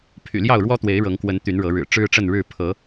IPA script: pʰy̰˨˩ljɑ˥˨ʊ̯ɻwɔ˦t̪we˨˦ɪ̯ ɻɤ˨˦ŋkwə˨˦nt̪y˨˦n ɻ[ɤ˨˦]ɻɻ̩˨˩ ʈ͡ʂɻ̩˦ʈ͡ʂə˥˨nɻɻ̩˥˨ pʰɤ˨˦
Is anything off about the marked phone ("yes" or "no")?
no